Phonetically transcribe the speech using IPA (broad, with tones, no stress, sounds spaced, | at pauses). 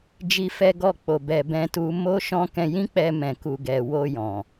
d͡ʒ i˧ f ɛ˧ ɡ ɔ˧ k͡p o˨ b ɛ˧ b ɛ̃˦ t u˦ m o˦ ʃ ɔ̃˦ k ɛ̃˧ j ĩ˦ k͡p ɛ˧ m ɛ̃˨ k u˨ ɡ ɛ˨ w o˧ j ɔ̃˨